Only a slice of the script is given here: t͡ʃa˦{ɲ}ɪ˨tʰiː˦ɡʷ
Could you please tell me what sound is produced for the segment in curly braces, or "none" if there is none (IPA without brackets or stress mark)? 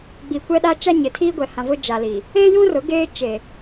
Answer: ɲ